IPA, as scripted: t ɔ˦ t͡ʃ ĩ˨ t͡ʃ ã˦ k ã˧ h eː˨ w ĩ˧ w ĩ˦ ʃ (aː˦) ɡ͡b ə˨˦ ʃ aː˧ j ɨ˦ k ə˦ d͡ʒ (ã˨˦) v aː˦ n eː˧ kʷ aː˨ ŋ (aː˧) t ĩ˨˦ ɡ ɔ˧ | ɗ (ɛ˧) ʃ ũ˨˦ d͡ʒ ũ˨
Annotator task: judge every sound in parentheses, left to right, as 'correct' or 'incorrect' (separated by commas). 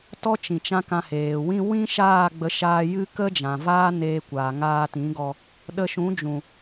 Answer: incorrect, incorrect, correct, incorrect